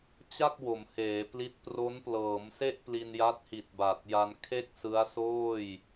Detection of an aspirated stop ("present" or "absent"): present